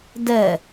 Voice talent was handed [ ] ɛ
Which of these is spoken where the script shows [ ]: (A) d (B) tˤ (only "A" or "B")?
A